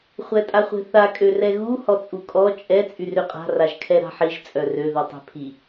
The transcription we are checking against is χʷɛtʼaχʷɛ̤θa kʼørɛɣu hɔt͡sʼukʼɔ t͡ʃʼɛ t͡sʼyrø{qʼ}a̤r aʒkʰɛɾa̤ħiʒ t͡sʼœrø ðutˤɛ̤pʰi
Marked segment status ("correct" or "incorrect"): correct